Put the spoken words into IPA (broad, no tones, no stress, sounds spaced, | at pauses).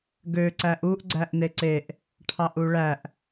ɡ ø ǀ æ ʔ u ʔ ɡ͡ǀ æ ʔ n e ǀ e ʔ | ʈʰ ɑ ʔ u ɭ æ ʔ